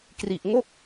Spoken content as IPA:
k r i˨˩ ʔ ŋ o˥˩ k̚

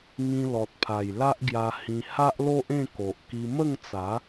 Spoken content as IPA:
ŋ ĩ˧ l ɔ˨ t̚ pʰ a˨˩ j l a˦ ʔ ɡ j a˧ h ĩ˧ h a˦ ʔ l o˦ ʔ ẽ˥˧ k o˨ ʔ k i˧ m ə˥˧ ŋ t͡s a˨˦

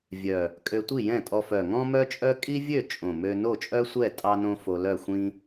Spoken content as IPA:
vʲ œ˨˩ | kʼ ø˧ tʷ i˥˨ j ɛ̃˥˨ tʼ ɔ˧ f œ˨˩ ŋ ɔ̃˥ m œ˥ t͡ʃʼ œ˥ kʼ i˥ vʲ ø˥˨ t͡ʃʼ õ˨˩ m ø˧ n o˥˨ t͡ʃʼ œ˥ sʷ ɛ˥˨ tʼ ɑ˥ n õ˥ f o˧ l œ˥˨ xʷ ĩ˥

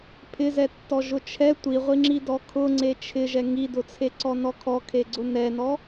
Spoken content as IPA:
pʰ ɪ z ɛ tː ɔ ʒ ʊ t͡ʃʰ ɛ tʷ i ʁʷ i ŋ͡ǁ i d ɔ kʰ ʊ ŋ͡ǀ e t͡ʃʰ ɪ ʒ ɛ ŋ i d ʊ t͡sʰ e ǀ ɔ n ɔ kʰ ɔ kʰ e ɡ͡ǀ ʊ n ɛ n ɔ

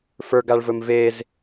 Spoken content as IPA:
f ə˞ ɡ a ɭ v ɵ m v e z

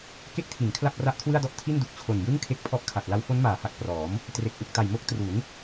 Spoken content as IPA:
k e˦˥ k̚ tʰ i˩˦ n kʰ l a˥˩ p̚ r a˦˥ ʔ kʰ w ɯ˥˩ a̯ d ɔ˥˩ ʔ tʰ i˥˩ n d u˨˩ k̚ t͡ɕʰ o˨˩ n j ɯ˥˩ ŋ kʰ e˥˩ k̚ pʰ ɔ˥˩ ʔ kʰ a˨˩ t̚ l a˧ w f o˦˥ n m aː˩˦ h a˨˩ k̚ p r ɔː˩˦ m | t r e˨˩ k̚ ʔ u˨˩ k̚ t a˨˩ j m o˦˥ k̚ t r u˩˦ n

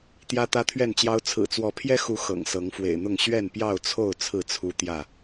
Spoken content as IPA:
t̪ j ä˦ t̪ ä˦ t̪ʰ ɥ ɛ˥˨ n t͡ɕ j ɑ˦ ʊ̯ t͡sʰ ɹ̩˨˩ t͡s w ɔ˨˦ pʰ j ɛ˦ x u˨˦ x ɤ̰˨˩ ŋ s ɤ˨˦ ŋ f w ḛ˨˩ ɪ̯ n̪ ʊ˥˨ ŋ ɕ ɥ ɛ˥˨ n p j ɑ˥˨ ʊ̯ t͡sʰ o˥˨ ʊ̯ t͡sʰ ɹ̩˥˨ t͡sʰ u˦ t̪ j ä˥˨

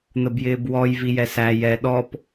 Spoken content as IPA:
n̪ ə b j ɪː b w ɔ j v i j ɛ s æ j ɛ ɗ ɔ p

